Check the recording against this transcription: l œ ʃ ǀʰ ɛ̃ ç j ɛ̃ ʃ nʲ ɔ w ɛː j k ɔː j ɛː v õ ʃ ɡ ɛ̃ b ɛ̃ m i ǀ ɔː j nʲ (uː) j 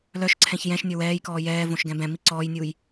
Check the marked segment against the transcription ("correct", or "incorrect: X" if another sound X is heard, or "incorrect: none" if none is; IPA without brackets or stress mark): correct